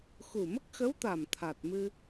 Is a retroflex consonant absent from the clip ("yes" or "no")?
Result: yes